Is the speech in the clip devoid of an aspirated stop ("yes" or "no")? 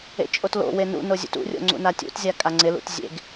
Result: yes